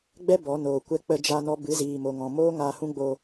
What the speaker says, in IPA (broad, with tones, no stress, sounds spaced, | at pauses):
ɡ͡b ɛ˦ b ɔ˨˦ n oː˨ kʷ ɛ˧ k͡p ə˧ d͡ʒ a˧ n ɔ˧ b ɨ˨˦ z iː˨ m o˨ ŋ ɔ̃˨ m oː˦ ŋ a˧ h ũ˦ ɡ͡b o˧